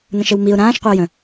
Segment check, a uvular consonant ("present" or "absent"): present